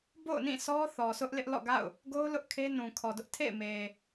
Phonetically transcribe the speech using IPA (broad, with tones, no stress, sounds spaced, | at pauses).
b o̰˦˨ ʊ̯ n ĩ˦˨ s ɔ˦ θ ɔ˨ sʰ ʊ˦ ʔ l ɪ˦ ʔ l ɔ̰˦˨ ɡ a̰˦˨ ʊ̯ | ɡ o˦ ʊ̯ l ʊ˦ ʔ kʰ e˦ n ũ˨ kʰ ɔ˨ d ʊ˦ ʔ tʰ ḛ˦˨ ɪ̯ m e˨